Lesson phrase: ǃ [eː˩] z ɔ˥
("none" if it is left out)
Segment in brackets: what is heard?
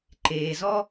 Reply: eː˩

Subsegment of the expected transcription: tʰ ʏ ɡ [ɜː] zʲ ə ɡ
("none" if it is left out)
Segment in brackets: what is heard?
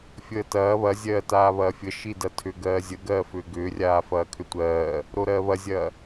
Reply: ɜː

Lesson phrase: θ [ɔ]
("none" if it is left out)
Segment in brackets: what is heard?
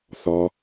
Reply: ɔ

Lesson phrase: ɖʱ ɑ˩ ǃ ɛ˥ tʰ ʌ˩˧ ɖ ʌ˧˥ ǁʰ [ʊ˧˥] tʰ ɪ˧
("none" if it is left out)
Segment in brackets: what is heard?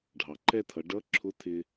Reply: ʊ˧˥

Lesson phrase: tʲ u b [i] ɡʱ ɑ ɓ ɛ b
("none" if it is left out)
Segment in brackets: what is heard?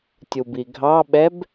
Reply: i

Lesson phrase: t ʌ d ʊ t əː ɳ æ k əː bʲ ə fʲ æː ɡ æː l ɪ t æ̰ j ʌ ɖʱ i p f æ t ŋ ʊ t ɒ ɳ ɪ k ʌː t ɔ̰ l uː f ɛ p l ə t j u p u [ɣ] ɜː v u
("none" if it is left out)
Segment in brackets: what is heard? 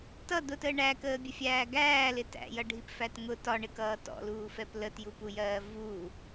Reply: j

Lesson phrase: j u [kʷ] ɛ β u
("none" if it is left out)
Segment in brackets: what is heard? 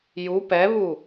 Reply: p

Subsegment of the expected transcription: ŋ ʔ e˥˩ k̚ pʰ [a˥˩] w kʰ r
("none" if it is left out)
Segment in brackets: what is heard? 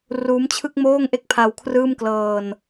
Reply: a˧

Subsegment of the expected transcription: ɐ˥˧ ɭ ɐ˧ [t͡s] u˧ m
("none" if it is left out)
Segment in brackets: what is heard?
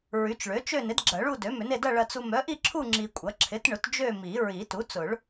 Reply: t͡s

